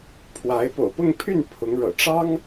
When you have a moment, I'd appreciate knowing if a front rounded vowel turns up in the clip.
yes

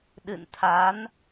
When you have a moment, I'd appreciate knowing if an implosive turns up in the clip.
yes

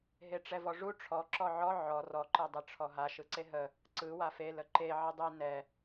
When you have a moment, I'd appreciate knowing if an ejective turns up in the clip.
no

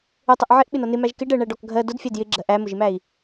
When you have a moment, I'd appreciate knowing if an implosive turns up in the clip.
yes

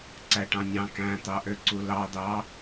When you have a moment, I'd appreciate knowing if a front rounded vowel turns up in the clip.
yes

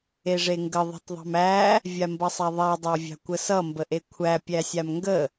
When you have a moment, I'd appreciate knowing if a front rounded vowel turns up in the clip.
no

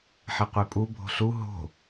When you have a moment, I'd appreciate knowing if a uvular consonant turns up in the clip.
yes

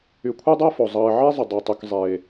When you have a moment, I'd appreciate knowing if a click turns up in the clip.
no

